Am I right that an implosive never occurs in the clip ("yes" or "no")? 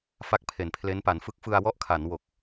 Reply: yes